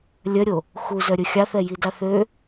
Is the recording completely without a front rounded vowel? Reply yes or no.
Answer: no